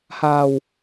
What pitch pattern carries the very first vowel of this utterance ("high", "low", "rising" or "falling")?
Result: low